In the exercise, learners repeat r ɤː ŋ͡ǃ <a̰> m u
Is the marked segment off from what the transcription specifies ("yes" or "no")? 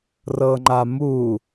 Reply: yes